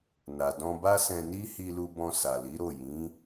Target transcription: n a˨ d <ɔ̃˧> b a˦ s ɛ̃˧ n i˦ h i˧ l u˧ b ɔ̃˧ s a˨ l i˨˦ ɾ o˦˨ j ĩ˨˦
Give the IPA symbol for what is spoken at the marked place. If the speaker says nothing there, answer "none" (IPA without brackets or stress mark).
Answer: ɔ̃˧